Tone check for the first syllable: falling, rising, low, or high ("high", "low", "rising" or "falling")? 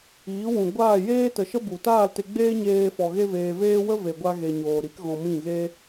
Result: rising